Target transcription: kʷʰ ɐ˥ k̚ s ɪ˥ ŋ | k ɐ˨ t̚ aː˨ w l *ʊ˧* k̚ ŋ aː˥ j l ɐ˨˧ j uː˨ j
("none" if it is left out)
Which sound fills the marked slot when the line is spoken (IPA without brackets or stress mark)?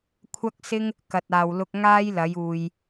ʊ˧